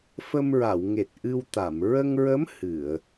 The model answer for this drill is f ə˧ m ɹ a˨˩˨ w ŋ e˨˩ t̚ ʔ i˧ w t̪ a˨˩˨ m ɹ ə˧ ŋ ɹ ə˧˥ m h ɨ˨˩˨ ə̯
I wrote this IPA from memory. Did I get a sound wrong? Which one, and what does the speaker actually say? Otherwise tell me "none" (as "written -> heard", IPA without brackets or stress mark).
i˧ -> ɨ˧